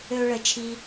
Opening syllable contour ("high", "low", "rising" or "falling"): high